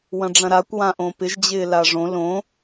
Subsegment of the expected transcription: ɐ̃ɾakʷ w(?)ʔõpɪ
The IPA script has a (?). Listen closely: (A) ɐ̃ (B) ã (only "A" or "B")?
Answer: B